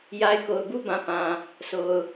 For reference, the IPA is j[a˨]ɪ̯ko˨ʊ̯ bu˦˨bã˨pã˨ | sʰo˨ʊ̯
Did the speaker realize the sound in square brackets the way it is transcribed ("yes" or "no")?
yes